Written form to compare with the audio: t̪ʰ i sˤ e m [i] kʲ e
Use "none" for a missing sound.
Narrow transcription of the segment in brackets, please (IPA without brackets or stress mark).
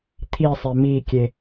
i